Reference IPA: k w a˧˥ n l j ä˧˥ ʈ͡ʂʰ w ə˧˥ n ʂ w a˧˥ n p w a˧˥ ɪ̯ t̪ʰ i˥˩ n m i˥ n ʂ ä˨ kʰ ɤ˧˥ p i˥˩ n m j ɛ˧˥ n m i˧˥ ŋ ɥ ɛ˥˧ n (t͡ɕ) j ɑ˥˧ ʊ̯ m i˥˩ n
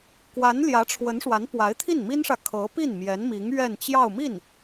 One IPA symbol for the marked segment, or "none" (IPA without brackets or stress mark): t͡ɕ